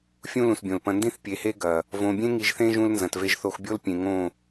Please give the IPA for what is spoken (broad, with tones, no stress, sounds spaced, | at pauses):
fʲ ũ˦ l ũ˨ s bʲ õ˨ l p ɐ̃˨ n d ĩ˦˨ θ pʲ e˨ h e˦ ɡ ɐ˨ | v õ˨ bʲ ẽ˦ ŋ i˨ ʒ θ ẽ˦ ʒ ũ˦ l n z ɐ̃˨ t v e˦ ʒ θ o˦ x bʲ o˦ l pʲ ẽ˨ ŋ õ˦˨